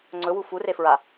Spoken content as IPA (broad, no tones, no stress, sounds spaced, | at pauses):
ŋ͡ǀ ɵ w u f u r e f ɹ a